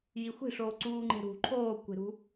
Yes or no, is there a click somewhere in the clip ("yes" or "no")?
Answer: yes